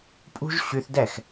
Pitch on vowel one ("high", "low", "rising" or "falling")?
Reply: high